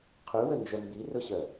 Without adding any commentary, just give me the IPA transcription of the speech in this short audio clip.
qʰ y w ə n d͡ʒ œ m b i r ʊ ɕ œ

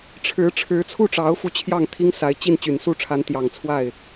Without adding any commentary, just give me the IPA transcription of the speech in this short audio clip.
ʈ͡ʂʰ ɻ̩˧˥ ʈ͡ʂʰ ɻ̩˧˥ t͡sʰ u˥˩ ʈ͡ʂ ɑ˧˥ ʊ̯ f u˥˧ t͡ɕʰ j ɑ˥˩ ŋ t̪ʰ i˥ ŋ s a˧˥ ɪ̯ t͡ɕ i˥˩ n t͡ɕ y˨˩ n s u˥˩ ʈ͡ʂʰ a˧˥ n t̪ j ɑ˨˩ ŋ t͡sʰ w a˥˩ ɪ̯

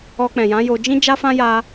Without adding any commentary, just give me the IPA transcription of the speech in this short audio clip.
ɔ˧ k͡p ɛ̃˨ j ã˨˦ j o˧ d͡ʒ ĩ˦ d͡ʒ a˦ f ã˦ j a˦

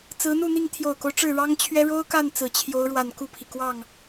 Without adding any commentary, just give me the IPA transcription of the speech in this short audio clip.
t͡s ɹ̩˧˥ n̪ u˥˧ n̪ i˥˩ ŋ t̪ʰ j o˨˩ ʊ̯ k o˦ ʊ̯ ʈ͡ʂ ɻ̩˥˩ ɻ ɑ˥ ŋ t͡ɕʰ ɥ ɛ˥ ɻ o˥ ʊ̯ k a˥˩ n t͡s ɹ̩˨˩ t͡ɕʰ j o˧˥ ʊ̯ ɻ w a˨˩ n k u˥˩ pʰ i˩ k w ɑ˥˩ ŋ

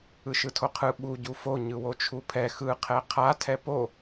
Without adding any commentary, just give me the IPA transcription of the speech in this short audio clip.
ɯ ʃ ɯ tʰ o qʰ ɯ ɓ u ɟ u f o ɲ ɯ w o t͡ʃʰ u pʰ ɛ x ɯ qʰ ɛ qʰ a tʰ ɛ p o

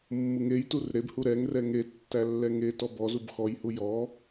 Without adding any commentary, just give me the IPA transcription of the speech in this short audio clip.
mː u ŋ e j t u r ɾ e b h u ɾ ɛ ŋ r ɛ ŋ e tː æ lː ɛ ŋ e t ɔ b ɔ z u b x ɔ j h u j ɔ

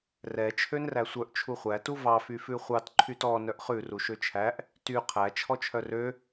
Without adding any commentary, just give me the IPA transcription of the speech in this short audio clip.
r ɛ t͡ʃʰ ø n r æ sʷ œ ʔ t͡ʃʰ u χʷ æ t u v ɑ f y f ʉ χʷ ɑ t ǃʰ y t ɔ n œ ʔ χ ʉ r u ʃ ø t͡ʃʰ æ ʔ | t y qʰ æ t͡ʃʰ ɔ t͡ʃʰ œ r ø

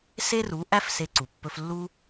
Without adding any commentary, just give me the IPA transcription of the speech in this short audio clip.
s e˦ r u˨˦ ʔ æ˦ f s e˧ ǀ u˨ pː ɵ˧ f lː u˧

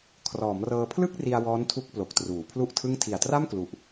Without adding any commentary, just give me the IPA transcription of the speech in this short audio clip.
kʰ r ɔː˩˦ m r ɤː˧ pʰ l ɯ˥˩ k̚ r i˧ a̯ w ɔː˦˥ n tʰ u˦˥ k̚ p l o˨˩ k̚ t r uː˩˦ pʰ l u˥˩ ʔ tʰ ɯ˥˩ ŋ tʰ i˨˩ a̯ t r a˥˩ m k l u˨˩ ʔ

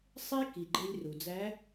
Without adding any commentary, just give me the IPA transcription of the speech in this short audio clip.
sˤ e˥ k i˩ ɡ͡ǃ e˧ lʲ r u˩ d͡z æ˧˥

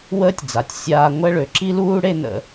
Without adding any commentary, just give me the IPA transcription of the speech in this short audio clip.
w əː˥ tʲ d͡z a˩ tʲ sʲ aː˧ ŋʷ ɛ˥ ɭ ø˩ ǁ i˥ l uː˥ ɽ e˥ n ə̰˧

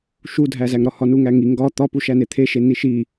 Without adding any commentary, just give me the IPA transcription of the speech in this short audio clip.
ʃ u dʱ æ z æ ŋ ɾ ɒ h ɒ n u ŋ æ ŋ i ŋ ɡ ɒ t̪ ɒ p u ʃ æ n e t̪ʰ e ʃ e n i ʃ i

